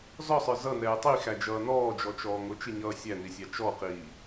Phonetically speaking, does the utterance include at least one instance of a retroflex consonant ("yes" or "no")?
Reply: no